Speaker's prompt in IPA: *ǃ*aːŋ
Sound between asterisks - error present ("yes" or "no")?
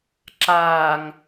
yes